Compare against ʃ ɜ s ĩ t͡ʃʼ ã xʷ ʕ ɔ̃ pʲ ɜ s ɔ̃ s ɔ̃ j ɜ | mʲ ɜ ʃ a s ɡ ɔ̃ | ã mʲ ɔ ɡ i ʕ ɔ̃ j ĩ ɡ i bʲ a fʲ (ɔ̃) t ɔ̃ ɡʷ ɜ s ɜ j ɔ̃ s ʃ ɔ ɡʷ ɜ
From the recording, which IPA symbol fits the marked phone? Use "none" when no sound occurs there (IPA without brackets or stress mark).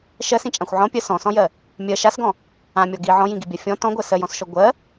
ɔ̃